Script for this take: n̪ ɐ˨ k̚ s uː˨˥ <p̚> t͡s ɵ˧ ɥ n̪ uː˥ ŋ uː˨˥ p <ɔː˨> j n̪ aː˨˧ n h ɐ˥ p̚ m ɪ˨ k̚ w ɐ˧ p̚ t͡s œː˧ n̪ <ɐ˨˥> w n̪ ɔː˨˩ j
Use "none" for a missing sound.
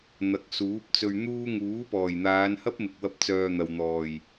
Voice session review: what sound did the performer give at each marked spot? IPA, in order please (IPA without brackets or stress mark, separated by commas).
p̚, ɔː˨˩, ɐ˨